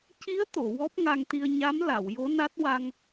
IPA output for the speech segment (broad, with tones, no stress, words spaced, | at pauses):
ci˧˥ə̯t̪o˨˩˨ wɔ˦˥p̚ŋa˧ŋt̪i˧ə̯ ɲa˧˥m la˨˩˨w jo˧˥na˦˥t̚ wa˧ŋ